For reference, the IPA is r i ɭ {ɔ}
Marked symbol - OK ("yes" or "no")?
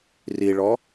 yes